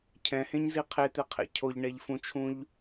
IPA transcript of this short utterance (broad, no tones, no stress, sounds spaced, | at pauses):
cʰ ɛ̃ h ẽ ɲ z i qʰ e t̪ e qʰ ḛ cʰ o ʎ ɳ ɛ ʎ f ũ t͡ʃʰ ũ ʎ